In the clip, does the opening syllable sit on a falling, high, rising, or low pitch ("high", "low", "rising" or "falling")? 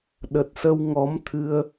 low